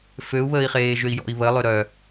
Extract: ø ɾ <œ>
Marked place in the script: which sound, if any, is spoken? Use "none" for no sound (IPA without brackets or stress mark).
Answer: œ